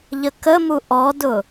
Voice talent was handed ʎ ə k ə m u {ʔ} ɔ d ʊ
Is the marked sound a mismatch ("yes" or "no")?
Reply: no